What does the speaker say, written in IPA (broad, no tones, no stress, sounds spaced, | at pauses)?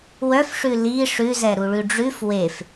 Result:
w œ f ʂ ʉ l i ʂ ʉ z ɛ ɾ u ɭ ʉ ɖ͡ʐ ʉ f w e f